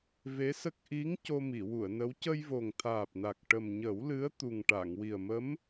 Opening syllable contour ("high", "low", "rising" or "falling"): rising